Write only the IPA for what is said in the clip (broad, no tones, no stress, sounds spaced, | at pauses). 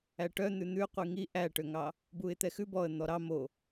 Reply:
æ ʈ œ n̪ ʉ n̪ ʉ qʷ i ŋ i ʔ æ ʈ ø ŋ ɑ | b u ɪ̯ t̪ ɛ x ʉ b ɔ ə̯ n̪ ɔ ɾ ɑ m o